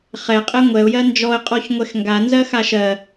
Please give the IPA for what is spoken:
χ ɛ qʼ ɛ ŋʷ ɛ ʊ̯ j ɜ n d͡ʒ ɔ ə̯ qʼ ɔ ç ŋʷ ɛ x ŋ ɡ a n z ɜ x a ʃ ɜ

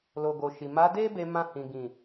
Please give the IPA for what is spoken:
l o˨ ɡ o˨ ʃ i˨ m a˨˦ d e˦ b e˧ m ã˧ h ĩ˨ ɡ ĩ˨

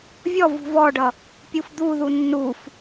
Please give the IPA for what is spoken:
vʲ ɔ v ṳ v ɔ ɖ ʌ | pʲ u f d̪ u ð u nː u f

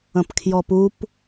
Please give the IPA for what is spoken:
ə̃ p kʰ j ɔ p u p

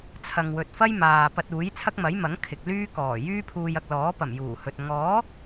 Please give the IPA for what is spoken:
t͡sʰ ɐ˨ ŋ w ɵ˨ t̚ f ɐ˥ j m aː˨ p ɐ˧ t̚ uː˨˥ j t͡sʰ ɐ˥ k̚ m ɐ˨˥ j m ɐ˨˥ ŋ kʰ ɪ˨ k̚ l yː˥ k ɔː˨˩ j yː˥ pʰ uː˧ j ɐ˧ k̚ l ɔː˨˥ p ɐ˨˩ m j uː˨˩ h ɵ˨ t̚ ŋ ɔː˨˥

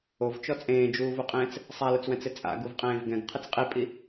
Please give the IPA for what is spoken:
o v t͡ʃ ɔ t͡sʼ ẽː d͡ʒ uː v u qʼ ẽː t͡s | sˤ a l ʊ t͡s w ɛ̃ t͡s ɪ t͡sʼ a̰ ɡ u v qʼ ẽː v ɡ ɛ̃ ɡ qʰ ɪ t͡s qʼ i pʼ i

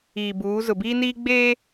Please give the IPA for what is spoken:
iː˨ b uː˨˦ z ʊ˨ b iː˦ n iː˦ ɡ͡b eː˦

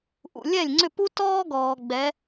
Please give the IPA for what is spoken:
ʔ ṵ˩ lʲ ɛ˥˩ lʲ ŋ͡ǀ ʏ˥˩ p u˥ t ɔː˥ ɡ ɔː˩ ɡ͡b ɛ˩˥

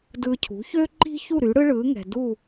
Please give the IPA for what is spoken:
d ɯː˧ cʰ ṳ˩˥ ç øː˥ ǃ i̤˥ ç u˥˩ ɾ y˩˥ ɽ ɯ˥ ɭ ɯː˩˥ ŋ ɛ̤˩ d u˥˩

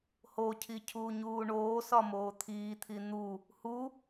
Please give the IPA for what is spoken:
h o cʰ i cʰ uː ɲ uː ɳ oː s ɒ m oː t̪ʰ iː t̪ʰ i n̪ u | h u

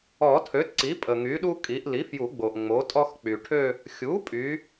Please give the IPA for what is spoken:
ɔ˨˩˦ tʰ ø˩˥ t ǀ i˩˥ pʼ ə˩ ŋ y˩˥ ɗ u˥ kʼ i˩˥ ʔ l i˩˥ f j u˨˩˦ ɡ͡b o˩ ʔ ŋ͡m o˩˥ tʼ ɔ˥ x k͡p y˩ ʈʰ ø˥˧ | xʲ u˩˥ pʼ y˩˥

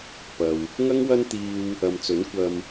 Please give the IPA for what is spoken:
p ɐ˨ w | ŋ ɐ˥ ŋ w ɐ˥ n t̪ iː˥ w | ɐ˨ m t͡s ɵ˨˥ n kʷ ɐ˧ m

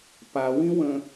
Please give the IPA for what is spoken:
p a w ĩ w ə̃

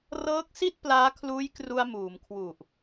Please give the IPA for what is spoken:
r ɤː˦˥ k̚ s i˥˩ t̚ p l aː˦˥ kʰ l uː˦˥ j k r u˧ a̯ m uː˩˦ m kʰ w u˨˩ ʔ

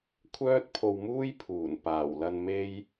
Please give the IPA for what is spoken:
kʷʰ œː˥ t̚ pʰ o˧ w m uː˥ j pʰ uː˨˩ n p aː˨˩ w l ɐ˧ n m e˥ j

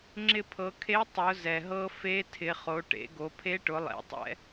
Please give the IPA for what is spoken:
ŋ͡ǁ ɪ˧ pʰ ɤ˩˧ kʰ e˧˥ tˤ ʊ˩˧ z ɛ˩ ɦ ɤ˧ f e˧˥ tʰ ɪ˩˧ χ o˩˧ ʈ ḛ˩˧ ɡ o˩˧ pʰ e˧˥ ʈ ʊ˩˧ lˠ ḛ˩˧ tˤ ɛ̰˧˥

